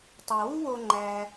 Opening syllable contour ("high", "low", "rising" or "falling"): low